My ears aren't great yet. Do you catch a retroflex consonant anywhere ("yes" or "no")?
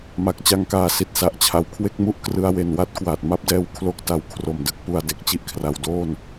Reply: no